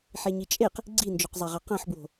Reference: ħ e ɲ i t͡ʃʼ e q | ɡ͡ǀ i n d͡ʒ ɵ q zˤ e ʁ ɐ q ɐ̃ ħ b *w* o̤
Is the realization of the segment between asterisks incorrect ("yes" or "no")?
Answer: no